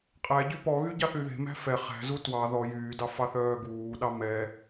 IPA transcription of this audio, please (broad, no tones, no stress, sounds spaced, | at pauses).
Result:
qʼ æ ɟ y p ɔ ɣ y ɟ ɑ θ y ð e̤ m æ̤ f ɛ χ æ̤ z u t w ɑ ð ɔ j yː d ɑ f ɑ θ œː ɡ uː ɗ ɑ m ɛ